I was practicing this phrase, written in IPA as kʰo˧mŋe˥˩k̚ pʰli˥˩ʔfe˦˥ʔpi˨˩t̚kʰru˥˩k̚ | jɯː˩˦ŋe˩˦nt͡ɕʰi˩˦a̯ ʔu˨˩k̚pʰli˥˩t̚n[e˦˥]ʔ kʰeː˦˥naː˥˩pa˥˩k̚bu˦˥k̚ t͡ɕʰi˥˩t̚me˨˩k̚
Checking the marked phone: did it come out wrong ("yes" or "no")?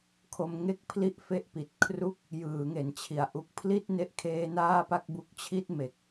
no